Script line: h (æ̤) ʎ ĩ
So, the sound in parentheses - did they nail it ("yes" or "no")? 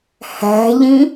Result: yes